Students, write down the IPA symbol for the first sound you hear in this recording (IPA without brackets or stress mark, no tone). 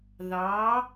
ð